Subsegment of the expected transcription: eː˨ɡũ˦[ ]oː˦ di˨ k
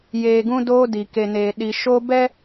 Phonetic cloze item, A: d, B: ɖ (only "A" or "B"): A